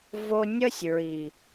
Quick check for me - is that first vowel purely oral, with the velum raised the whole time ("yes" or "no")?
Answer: yes